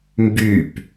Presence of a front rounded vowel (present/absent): present